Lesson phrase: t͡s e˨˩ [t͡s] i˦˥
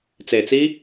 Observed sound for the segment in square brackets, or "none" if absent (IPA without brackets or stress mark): t͡s